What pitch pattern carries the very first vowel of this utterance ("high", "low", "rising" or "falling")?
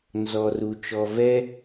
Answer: low